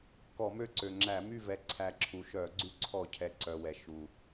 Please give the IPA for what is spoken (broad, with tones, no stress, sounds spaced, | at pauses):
k ɔ˧˩˧ m ø˦˨ ǀ ø˨˩ ŋ͡ǁ æ˧˩˧ m y˦˨ v ɛ˨˩ ǀʰ æ˨˩ ǁʰ u˨˩ ʃ œ˧˩˧ ɡ͡ǀ y˦˨ ǀʰ ɔ˧˩˧ cʰ ɛ˨˩ ǀ œ˨˩ w ɛ˨˩ ʃ u˨˩